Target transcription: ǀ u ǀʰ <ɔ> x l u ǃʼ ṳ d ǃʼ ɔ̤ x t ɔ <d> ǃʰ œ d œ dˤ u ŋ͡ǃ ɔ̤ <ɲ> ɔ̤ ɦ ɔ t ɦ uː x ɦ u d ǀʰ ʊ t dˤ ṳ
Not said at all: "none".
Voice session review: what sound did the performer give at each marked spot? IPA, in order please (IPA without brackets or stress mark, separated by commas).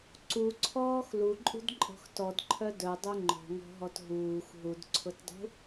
ɔː, d, ŋ